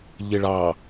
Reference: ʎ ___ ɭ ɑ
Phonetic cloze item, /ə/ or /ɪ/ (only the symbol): ɪ